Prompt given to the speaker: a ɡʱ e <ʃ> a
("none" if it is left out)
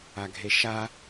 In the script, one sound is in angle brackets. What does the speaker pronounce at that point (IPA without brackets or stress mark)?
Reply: ʃ